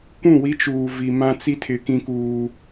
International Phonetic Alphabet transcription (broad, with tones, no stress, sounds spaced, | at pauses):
kʷ ũ˦˨ w i˦ t͡ʃ uː˨ v i˨ m ã˦ t͡s i˦ tʰ ɪ˨˦ k ĩ˦ k uː˦